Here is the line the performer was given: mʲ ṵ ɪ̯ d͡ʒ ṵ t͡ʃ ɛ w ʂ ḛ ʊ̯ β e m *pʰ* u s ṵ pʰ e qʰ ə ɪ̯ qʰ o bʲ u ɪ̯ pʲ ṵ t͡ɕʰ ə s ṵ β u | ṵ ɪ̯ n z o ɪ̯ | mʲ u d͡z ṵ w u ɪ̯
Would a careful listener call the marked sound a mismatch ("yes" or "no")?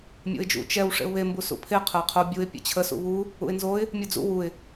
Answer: yes